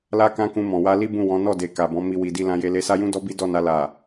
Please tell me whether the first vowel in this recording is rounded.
no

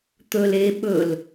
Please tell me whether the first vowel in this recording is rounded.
yes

